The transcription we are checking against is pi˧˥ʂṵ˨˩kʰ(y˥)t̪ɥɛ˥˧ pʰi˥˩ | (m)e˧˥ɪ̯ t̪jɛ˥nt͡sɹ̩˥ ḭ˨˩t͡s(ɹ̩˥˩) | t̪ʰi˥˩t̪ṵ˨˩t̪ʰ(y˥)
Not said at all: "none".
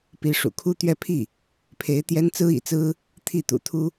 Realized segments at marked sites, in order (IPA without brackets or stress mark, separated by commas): u˥, pʰ, ɹ̩˥, u˥